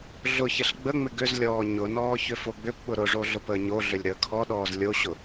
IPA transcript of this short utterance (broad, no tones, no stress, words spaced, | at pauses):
ɮʊçɪɬ ɡ͡bəŋ͡mɪ ɡʏzlʲɔː ɲʊnɔː çʏfoɡ͡bʏpɓʊ ɾʊʐo ɮʊpəːɲoɮʏlʲ ɾəːkʰɔɗɔːz lʲoɕʊ